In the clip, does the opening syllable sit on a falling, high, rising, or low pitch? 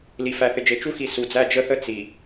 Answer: low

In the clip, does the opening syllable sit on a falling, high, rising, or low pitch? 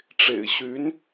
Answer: low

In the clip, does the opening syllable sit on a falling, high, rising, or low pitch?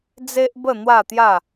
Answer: high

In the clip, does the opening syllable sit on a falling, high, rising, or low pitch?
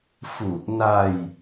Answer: low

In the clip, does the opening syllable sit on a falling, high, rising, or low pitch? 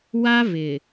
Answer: high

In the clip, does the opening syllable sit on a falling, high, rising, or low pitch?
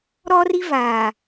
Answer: high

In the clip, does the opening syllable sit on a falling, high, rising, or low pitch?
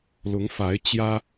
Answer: rising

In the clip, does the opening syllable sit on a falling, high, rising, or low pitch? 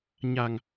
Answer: low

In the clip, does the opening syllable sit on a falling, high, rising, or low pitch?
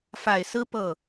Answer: low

